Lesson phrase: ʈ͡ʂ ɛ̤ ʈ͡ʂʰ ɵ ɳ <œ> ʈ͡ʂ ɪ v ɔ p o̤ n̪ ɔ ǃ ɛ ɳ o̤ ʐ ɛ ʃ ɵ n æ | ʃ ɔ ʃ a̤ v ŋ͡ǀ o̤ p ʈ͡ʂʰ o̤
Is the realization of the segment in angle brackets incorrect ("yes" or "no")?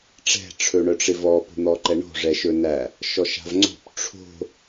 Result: no